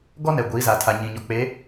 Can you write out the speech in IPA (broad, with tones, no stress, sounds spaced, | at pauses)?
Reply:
ɡ ɔ˦ n ɛ˨ ɡʷ iː˨˦ z a˨ tʰ a˨ ɲ ĩ˨ ɲ ɔ˨ k͡p e˨˦